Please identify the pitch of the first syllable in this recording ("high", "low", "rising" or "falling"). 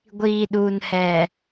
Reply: low